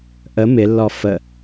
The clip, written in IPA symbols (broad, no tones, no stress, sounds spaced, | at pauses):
ʔ ə m ɪ lː ɔ f ə